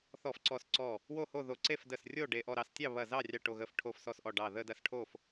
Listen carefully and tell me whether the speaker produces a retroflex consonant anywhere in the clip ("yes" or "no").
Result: yes